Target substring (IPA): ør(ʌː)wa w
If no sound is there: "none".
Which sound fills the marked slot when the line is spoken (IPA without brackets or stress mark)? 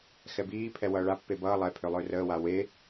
əː